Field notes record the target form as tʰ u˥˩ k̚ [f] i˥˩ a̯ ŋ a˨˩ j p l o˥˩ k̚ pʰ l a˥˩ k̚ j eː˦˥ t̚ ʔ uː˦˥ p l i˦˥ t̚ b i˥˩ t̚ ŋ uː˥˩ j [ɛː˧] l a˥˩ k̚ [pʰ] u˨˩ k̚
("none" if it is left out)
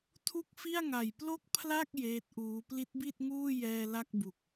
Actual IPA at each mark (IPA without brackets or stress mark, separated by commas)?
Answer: f, ɛː˧, b